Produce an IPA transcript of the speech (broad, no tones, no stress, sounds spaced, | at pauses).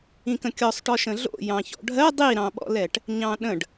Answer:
ĩ k ə̃ kʲ ɔ sˤ ʈ ɔ ʃ ə̃ ɮ o̰ j ɑ̃ ç ɔ̰ ɖʱ ɜ dˤ i ɾ ɑ̃ ɓ ɔ̰ l ɛ ʈ | ɲ ɑ̃ ɗ ə̃ ɖ